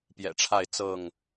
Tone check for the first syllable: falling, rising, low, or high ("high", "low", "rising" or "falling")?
low